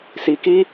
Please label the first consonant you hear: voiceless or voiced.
voiceless